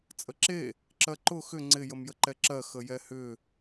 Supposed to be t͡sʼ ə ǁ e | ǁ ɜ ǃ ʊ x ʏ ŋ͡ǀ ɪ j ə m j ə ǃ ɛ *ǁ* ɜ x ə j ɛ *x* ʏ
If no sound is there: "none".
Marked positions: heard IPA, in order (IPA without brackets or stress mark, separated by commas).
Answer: ǁ, h